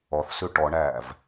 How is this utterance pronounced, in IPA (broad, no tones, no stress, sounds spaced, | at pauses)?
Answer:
ɔ θ s ʉ ʈ ɔ ɳ æː v